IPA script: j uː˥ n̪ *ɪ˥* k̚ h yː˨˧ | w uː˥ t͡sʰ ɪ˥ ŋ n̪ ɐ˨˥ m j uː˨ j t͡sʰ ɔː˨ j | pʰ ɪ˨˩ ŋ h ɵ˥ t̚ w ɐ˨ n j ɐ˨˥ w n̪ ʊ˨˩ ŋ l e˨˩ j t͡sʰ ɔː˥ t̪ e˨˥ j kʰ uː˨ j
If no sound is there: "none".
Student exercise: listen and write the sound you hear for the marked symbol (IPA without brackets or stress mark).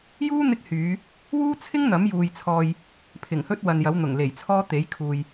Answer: ɪ˥